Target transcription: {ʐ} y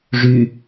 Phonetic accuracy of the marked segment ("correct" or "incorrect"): correct